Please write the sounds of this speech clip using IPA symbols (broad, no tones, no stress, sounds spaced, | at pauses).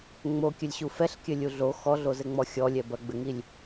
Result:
ŋ͡m o kʲ ɘ lʲ ɕ u f ɛ ɬ kʲ ɘ lʲ u ɮ o x ɔ ɮ o z ɘ ŋ͡m ɔ xʲ ɔ lʲ ɛ b ɐ ɡ͡b ɘ ŋ i lʲ